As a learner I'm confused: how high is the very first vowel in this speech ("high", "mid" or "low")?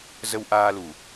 mid